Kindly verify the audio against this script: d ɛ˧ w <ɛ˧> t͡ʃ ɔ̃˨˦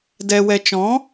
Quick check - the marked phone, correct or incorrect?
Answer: correct